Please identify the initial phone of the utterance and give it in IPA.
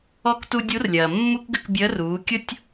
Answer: ɔ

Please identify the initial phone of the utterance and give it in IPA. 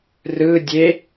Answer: r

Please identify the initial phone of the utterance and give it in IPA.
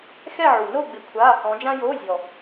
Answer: x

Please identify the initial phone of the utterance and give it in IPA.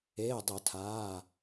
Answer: eː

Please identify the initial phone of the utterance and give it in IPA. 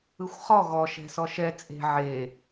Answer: ɯ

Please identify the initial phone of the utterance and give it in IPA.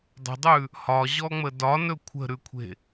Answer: dˤ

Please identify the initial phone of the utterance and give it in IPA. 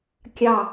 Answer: kʲ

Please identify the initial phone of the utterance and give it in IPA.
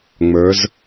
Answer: ŋ͡m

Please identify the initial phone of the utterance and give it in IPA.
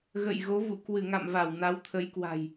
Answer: ɣ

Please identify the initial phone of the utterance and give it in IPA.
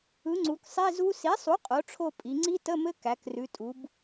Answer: ɯ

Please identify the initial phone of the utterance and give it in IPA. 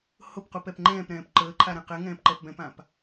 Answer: h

